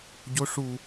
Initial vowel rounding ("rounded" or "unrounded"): rounded